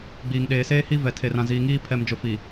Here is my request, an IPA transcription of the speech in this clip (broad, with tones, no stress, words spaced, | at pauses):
ɡ͡biː˨ŋɗeː˨seː˦ hi˦vɛ˨ tʰe˨rã˨ ziː˨ŋiː˦ pʰɛ˨md͡ʒʊ˨ fi˨